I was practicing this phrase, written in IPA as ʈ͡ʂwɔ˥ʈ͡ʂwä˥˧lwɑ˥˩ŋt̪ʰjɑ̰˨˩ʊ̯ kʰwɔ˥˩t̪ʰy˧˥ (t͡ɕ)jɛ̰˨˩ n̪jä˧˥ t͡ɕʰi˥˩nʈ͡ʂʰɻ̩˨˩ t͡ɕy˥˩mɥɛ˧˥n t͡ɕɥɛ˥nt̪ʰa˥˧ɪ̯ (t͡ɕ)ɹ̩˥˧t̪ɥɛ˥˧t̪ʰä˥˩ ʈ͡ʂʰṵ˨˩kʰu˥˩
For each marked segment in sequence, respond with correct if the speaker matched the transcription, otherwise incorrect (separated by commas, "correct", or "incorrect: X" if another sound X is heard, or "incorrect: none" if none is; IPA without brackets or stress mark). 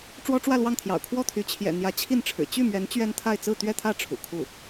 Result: incorrect: t͡ɕʰ, incorrect: t͡s